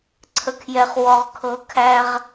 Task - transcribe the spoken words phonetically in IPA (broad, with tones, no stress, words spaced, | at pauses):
ǀʰə˨kʰjɛ˨χ wɔ˨ʁkʰɤ˨˦ kʰæ˦ʁ